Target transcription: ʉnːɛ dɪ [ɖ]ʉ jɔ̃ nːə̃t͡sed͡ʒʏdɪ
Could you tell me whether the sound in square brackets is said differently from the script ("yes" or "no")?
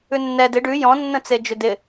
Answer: no